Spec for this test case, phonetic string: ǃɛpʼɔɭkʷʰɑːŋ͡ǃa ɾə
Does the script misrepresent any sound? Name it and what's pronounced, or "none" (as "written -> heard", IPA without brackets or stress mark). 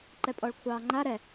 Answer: ə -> ɛ